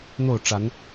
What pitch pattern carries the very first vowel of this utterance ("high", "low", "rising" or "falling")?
falling